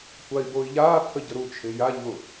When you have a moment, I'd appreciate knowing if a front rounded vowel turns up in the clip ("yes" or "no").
no